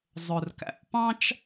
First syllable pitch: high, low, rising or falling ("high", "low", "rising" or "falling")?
low